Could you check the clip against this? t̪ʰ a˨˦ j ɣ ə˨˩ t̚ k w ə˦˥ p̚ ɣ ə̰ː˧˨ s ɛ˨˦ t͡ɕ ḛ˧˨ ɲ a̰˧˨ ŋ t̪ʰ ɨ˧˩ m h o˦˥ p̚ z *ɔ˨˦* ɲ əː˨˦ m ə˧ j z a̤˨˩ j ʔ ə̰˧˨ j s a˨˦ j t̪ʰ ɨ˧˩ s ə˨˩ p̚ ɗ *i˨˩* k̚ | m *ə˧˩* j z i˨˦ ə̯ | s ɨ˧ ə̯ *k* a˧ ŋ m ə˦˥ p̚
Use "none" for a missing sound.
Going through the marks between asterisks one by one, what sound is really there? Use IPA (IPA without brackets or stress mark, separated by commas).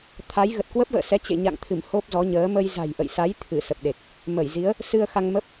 ɔ˨˦, e˨˩, ə˧˩, x